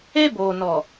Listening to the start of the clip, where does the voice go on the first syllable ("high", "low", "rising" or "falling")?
high